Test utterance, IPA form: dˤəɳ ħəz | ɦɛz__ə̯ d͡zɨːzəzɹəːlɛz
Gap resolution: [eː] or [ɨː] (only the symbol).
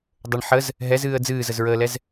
ɨː